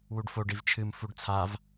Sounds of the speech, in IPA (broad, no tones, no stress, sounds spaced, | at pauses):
w u ɖ f o ɖ i v t͡ʃʰ ɨ m f u ɖ t͡sʰ a v